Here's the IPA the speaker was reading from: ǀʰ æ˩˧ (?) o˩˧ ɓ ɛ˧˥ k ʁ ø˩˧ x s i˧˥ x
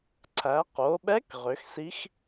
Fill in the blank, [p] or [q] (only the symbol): q